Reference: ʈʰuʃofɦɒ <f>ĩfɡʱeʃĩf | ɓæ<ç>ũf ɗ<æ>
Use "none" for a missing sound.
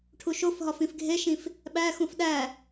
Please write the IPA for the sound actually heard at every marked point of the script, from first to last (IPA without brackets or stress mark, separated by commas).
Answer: f, x, æ